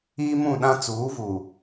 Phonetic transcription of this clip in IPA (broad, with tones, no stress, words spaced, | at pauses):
iː˦mũ˦˨ɗã˦ t͡suː˨˦vu˨